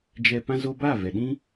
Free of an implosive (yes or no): no